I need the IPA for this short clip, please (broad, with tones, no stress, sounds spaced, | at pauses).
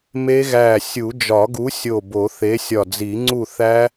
m e˦˥ ɣ æ˧˩ sʲ u˨˩˦ d͡ʒ ɒ˨˩˦ ɡ u˨˥ sʲ o˧˩ b o˨˩˦ θ e˨˥ sʲ ɒ˧˩ d͡z i˨˩˦ ŋ͡ǀ u˥˨ θ æ˦˥